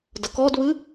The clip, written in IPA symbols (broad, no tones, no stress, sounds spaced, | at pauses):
d ɐ k ɔ d β ɨ